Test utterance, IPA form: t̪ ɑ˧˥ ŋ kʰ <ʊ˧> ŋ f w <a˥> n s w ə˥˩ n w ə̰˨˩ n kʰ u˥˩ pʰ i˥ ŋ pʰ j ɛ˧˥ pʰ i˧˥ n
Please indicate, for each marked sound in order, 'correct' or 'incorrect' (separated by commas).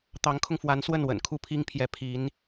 correct, incorrect